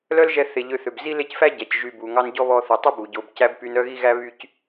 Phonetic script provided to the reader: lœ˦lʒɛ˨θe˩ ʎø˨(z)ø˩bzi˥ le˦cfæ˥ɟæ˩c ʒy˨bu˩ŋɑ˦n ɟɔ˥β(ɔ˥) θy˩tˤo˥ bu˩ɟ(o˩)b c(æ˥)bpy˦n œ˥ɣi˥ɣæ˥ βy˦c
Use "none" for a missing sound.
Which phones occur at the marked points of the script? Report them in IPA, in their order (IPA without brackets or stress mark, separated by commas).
θ, ɔ˦, o˨, æ˥